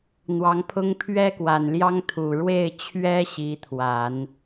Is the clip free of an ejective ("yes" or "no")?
yes